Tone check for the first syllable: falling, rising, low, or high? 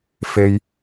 low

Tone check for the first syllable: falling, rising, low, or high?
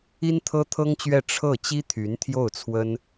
high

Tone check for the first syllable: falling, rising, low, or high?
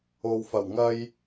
low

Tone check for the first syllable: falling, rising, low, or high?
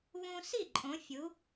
high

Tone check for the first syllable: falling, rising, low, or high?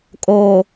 low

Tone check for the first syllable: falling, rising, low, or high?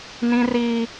high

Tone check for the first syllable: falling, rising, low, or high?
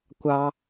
high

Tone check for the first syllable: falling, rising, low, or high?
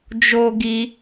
high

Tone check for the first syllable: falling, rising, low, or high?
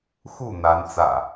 falling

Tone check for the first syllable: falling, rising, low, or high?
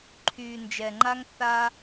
low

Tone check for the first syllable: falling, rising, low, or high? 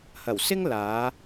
low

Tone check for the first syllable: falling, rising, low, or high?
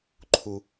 low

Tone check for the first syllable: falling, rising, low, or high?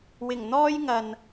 low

